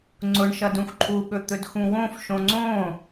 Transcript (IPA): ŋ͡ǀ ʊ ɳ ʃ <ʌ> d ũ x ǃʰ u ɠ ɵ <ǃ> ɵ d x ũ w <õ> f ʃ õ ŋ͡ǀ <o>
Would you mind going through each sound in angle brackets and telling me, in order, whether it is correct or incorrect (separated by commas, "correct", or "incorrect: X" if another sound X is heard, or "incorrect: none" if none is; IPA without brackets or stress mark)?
correct, incorrect: t̪, correct, incorrect: õ